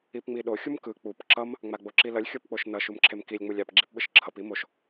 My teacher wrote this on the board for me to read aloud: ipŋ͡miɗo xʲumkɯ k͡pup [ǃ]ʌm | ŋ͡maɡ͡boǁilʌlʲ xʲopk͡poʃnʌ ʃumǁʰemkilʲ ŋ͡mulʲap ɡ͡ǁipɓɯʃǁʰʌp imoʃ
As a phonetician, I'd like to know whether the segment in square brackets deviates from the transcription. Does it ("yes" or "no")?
yes